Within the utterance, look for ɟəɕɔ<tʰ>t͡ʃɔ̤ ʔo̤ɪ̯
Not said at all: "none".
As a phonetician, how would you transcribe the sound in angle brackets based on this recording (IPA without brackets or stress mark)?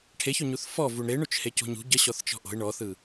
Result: θ